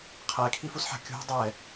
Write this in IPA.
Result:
qʰɛkʰifusħa̤ kʲṳ dˤɛ

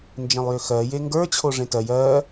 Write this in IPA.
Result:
nd͡ʒẽlˠjøxɜ jeŋɡə˞ t͡ɕʰoʐẽtɜj ɜ

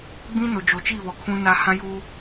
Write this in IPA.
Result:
ɡ͡bĩ˦no˨ d͡ʒo˨t͡ʃi˦˨βɔ˨ kʰũ˦na˦ hã˦juː˦

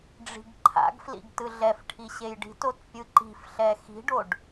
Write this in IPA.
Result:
ɖ͡ʐi̤ɡǃʰa̰ɡflḭɡ tɯɮɛfʈʰi ɕejɖi̤tot pʲɯǃi̤fɬɛ xi̤ɖoɖ

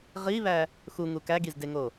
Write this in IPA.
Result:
ʁiβæ | xuŋu kæɡizdeŋo

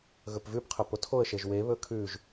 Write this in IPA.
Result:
ɣɵpvʉp qʰœpotʰoə̯ ʃeʒwe βɵkʰʉʒ

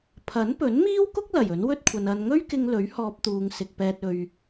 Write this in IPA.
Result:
pʰɐ˨˥npɵ˨˥nmiː˥wkʊ˥k̚ lɐ˨˩jɵ˨˥nwɵ˥t̚kʷʰɐ˨n ɐ˨nŋɵ˥ɥkɪ˧ŋ lɵ˨˥ɥ hɔː˧p̚t̪uː˨ŋsɪ˨k̚pɛː˧t̚ ɵ˨ɥ

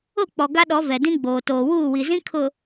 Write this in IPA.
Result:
ʊ˦˨k͡pɔ˨ ɡa˦ɗɔ˨˦ vɛ˨dĩ˦ɡ͡boː˨ toː˨wuː˦˨wi˨zĩ˦ kʰʊ˨

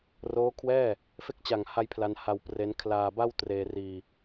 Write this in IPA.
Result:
roː˦˥kʰwɛː˥˩ | fe˦˥k̚t͡ɕa˨˩ŋha˧j pʰla˧nha˧wpre˦˥n kʰlaː˧ba˥˩wtreː˧riː˧

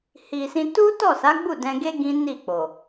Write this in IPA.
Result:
hi˨ sĩ˧ tu˦tɔ˦˨sa˨˦ ɡ͡bu˦˨ dɛ̃˧ɡe˦ ɡĩ˦ni˦˨k͡po˨

